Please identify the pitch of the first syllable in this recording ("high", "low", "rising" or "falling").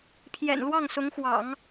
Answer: low